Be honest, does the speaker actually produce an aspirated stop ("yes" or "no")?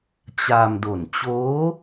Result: no